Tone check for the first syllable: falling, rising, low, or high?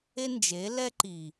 high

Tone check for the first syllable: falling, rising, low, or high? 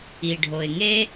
low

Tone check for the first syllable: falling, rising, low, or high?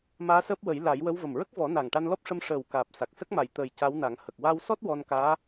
rising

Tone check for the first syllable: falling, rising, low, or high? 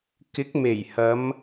rising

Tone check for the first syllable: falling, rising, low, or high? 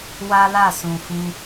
high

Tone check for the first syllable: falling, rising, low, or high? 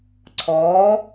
rising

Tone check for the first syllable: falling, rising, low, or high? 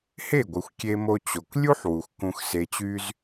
falling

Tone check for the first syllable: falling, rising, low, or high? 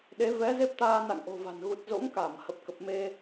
rising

